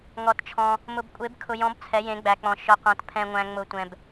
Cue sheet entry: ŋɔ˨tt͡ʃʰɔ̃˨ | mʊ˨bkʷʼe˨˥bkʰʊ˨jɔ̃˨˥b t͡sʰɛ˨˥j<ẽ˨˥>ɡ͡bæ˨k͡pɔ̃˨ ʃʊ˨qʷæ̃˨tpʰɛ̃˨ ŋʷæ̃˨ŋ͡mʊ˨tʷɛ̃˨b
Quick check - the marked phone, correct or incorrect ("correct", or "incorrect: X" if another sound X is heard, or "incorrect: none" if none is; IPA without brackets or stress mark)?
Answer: correct